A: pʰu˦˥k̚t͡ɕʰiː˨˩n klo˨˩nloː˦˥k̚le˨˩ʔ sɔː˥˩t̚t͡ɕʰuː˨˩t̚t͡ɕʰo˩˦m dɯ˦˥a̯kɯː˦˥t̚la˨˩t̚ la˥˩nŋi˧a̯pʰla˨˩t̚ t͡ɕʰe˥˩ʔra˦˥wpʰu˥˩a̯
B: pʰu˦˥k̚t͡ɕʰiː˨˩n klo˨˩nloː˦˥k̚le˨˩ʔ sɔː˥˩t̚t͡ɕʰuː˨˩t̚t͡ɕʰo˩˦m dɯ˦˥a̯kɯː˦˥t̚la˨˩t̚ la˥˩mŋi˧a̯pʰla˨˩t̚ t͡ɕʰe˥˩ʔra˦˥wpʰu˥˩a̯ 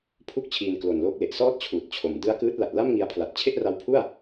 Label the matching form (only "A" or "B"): B